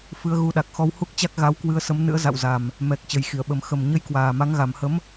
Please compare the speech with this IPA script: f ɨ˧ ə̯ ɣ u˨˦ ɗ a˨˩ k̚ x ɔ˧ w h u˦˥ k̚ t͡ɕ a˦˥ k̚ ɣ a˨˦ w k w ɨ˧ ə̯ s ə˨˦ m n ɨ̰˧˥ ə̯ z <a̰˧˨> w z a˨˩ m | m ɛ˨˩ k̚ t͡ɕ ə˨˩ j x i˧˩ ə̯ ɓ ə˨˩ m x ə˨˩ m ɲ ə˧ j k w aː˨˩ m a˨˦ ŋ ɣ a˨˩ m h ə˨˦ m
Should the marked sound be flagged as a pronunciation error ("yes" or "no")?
no